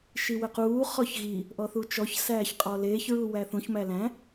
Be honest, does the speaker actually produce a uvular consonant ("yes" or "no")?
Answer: yes